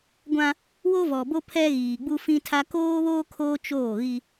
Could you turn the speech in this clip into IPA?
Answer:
ɡʷ ã˦ | w o˦ v ɔ˨ b o˦ pʰ ɛ˦ ɣ iː˨ ɡ͡b u˦ f ĩ˦ tʰ a˦ k oː˦ β oː˦ kʰ oː˦ t͡ʃ oː˦˨ ɣ i˦

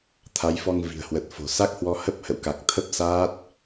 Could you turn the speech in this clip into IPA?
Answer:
t̪ʰ a˨˦ j f ɔ˧ ŋ v i̤˨˩ ə̯ h w ə˨˩ t̚ f o̤˨˩ s a˦˥ k̚ h w ɔ˧ h ə˦˥ p̚ h ə̰˧˨ w k a˨˩ k̚ t̪ʰ ə˦˥ p̚ s aː˦˥ t̚

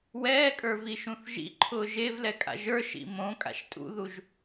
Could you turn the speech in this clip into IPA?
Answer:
w ɛː kʼ ə˞ v i ʃ ũ θ ʒ ḭ ǃʰ ʊː ʒ e v l ɛ kʼ a̰ ʒ ə˞ ʃ ḭ m õ kʼ a̰ ʃ tʼ ṵ ð u ʒ

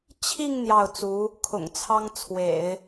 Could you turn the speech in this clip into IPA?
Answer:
t͡ɕʰ i˥˧ ŋ n̪ j ɑ˥˩ ʊ̯ t͡s u˧˥ | kʰ ʊ̰˨˩ ŋ t͡sʰ ɑ˥ ŋ t͡sʰ w ḛ˨˩˦ ɪ̯

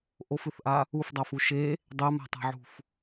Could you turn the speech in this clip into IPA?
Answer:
ʔ o f ɨ θ ʔ a | u f dˤ a f u ʃ e | dˤ ɛ m a̤ tˤ a̤ ʕ ṳ f

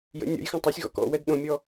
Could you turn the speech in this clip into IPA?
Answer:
j ə̰ nʲ ɔ̰ j x ã tˤ œ sʲ ɣ ɔ̰ k ɔ̰ w ɛ d ɗ õ mʲ ɔ

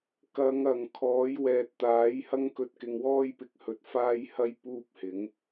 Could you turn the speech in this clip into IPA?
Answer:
k ɐ˨˧ ŋ ɐ˨˩ ŋ kʰ ɔː˨˥ j w ɛː˨ t̚ t̪ aː˨˥ j h ɐ˥ ŋ k ɵ˧ t̚ k ɪ˨ ŋ w ɔː˥ j p ɪ˨ k̚ h ɵ˨ t̚ f aː˥ j h ɐ˥ j p uː˥ p̚ h ɪ˨˥ ŋ

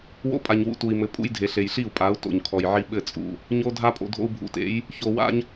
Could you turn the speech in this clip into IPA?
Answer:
w o̰˦ pʼ a˨ ɲ w ṵ˨ t u˨ i̯ m ɘ˨ pʼ ṵ˦ j dʱ e˨ ɬ e˨ j ɬ i˦˨ u̯ pʼ a˨˦ u̯ t o̰˨ ɲ kʰ ɔ˨ j ʕ i˦ ɓ ɘ˦˨ t͡sʼ ṵ˨ | ɲ o˦ dʱ a˦ pʼ o̰˨ dʱ o̰˦ u̯ bʱ ṵ˨ t ḛ˨˦ j | ç o˨ w a̰˦ ɲ

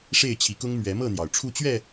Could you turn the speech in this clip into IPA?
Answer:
ʂ e˥˨ ɪ̯ t͡ɕʰ i˨˦ k ʊ˦ ŋ m ɥ ɛ˨˦ m ɤ˥˨ n̪ j ɑ˩ ʊ̯ ʈ͡ʂʰ u˥˨ t͡ɕ ɥ ɛ˥˨

